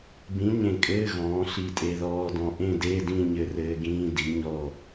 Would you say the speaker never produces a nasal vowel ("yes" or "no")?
no